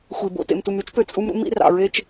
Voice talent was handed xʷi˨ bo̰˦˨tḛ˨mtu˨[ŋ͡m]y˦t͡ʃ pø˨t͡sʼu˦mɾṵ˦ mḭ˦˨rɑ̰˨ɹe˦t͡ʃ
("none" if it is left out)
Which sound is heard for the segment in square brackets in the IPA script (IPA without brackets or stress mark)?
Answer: m